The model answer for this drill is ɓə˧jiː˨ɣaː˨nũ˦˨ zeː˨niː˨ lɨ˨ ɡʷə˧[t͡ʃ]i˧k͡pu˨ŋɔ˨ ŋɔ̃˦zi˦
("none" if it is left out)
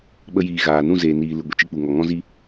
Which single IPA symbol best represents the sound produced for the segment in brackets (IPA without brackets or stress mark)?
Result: t͡ʃ